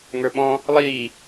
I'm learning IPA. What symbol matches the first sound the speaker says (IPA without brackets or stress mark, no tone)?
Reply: ŋ